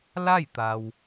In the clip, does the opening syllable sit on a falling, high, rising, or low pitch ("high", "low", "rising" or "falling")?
falling